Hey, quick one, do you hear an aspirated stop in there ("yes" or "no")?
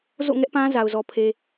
yes